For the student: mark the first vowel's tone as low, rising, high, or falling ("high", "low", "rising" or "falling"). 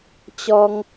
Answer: high